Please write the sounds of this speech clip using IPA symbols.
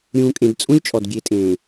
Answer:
ɾʲ ũː˨ kʼ ẽ˨ d t͡sʼ ũ˦ lʲ t͡ʃʼ ɔ˨ d ɡʲ e˨ tʼ ẽː˨

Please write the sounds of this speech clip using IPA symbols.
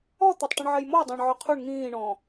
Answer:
ɔ t̪ æ tˤ ʈ ĩ ɳ ʕ ɛ j m ɔ j dˤ ɑ̃ ɳ ʕ ɔ qʰ u ɳ ŋ ĩː ɳ ɔ̃

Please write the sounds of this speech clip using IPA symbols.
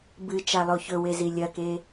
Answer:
b ɨ t͡ʃ a lˠ o ç ɵ w e z i lʲ ɐ k e

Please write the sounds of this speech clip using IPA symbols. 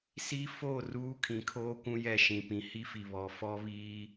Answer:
s i˦ f o˦˨ r uː˦ kʰ ĩ˨˦ kʰ oː˦ kʷ ũ˦ j ɛ˦˨ ʃ ĩ˨ p ĩ˨ h i˦ f i˨ β ɔ˨ f ɔ˦ β iː˦

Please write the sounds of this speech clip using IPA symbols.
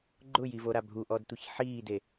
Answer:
ɡ͡ǃ ʊ j i v o ɾ a bʱ u ʔ ɔ d tʷ i ç ħ iː d e

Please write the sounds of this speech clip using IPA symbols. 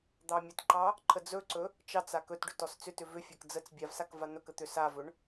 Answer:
d̪ ɑ mʲ ə t ǃ ɑ | ǃʰ ə d͡z ɵ ǀ ɵ | t͡ʃ ɑ t͡s a k ɵ t ɖ ʏ t ɔ s t͡s ʏ t ʏ v ʏ fʲ ɑ k d͡z ə t͡s bʲ a v s a k v a n̪ ɵ k ə t̪ ʏ s a v ɵ ɳ

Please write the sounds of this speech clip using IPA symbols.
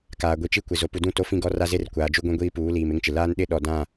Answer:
k aː˨ ɡʷ i˨ t͡ʃ i˦ kʷ ɪ˨ z o˨ p u˨ d ũ˦˨ t o˦ f ĩ˦ ɡ ɔ˦ r a˦ z e˦ r kʷ aː˨ d͡ʒ u˦ ɡʷ ĩ˦ ɡʷ iː˦ p uː˨˦ l iː˨ m ɪ˦ ŋ t͡ʃ ɪ˨ l aː˦ n ɗ ɪ˦ ɗ ɔ˨ d ã˦˨

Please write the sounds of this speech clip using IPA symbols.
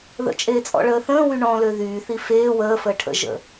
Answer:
ð ə̰ t͡ʃʼ eː t͡sʼ ɔ̰ ɭ əː θ ə̃ː w y ɳ ɔ̃ l ø ð yː θ i f eː w əː f əː ʈʰ ə̰ ʒ ə̰

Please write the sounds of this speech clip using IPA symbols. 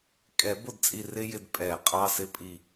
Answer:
kʼ ɛ˨˩˦ b ʊ˨ d t͡sʼ i˦˨ r ɪ˥ j ɪ˦˨ d pʼ ɛ˨˩˦ qʼ ɑ˧˥˧ s ɪ˥ pʼ i˦˨

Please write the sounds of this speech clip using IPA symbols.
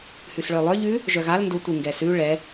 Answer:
h ʉ s ɭ œ lˠ œ ʎ ʉ | ʒ œ ɣ a l n d ʊ tʷ ɯ ŋ ɡ ɛ s ʉ ɭ ɛ

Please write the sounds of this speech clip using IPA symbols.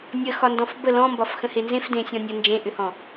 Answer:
nʲ ə x ɒ n d ɔ̃ f b ə l ɔ̃ m b ɒ f x ə̃ h e n z ẽ f d ẽ sʲ ɔ̃ nʲ ə n d͡ʒ ẽ ʔ ʏ h ɔ̃

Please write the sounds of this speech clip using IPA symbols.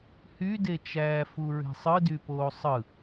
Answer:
h y d e t͡ʃ æː f u ɹ e̤ sˤ ɯ d y p oː sˤ ɯ

